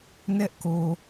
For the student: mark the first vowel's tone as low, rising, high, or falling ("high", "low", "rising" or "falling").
high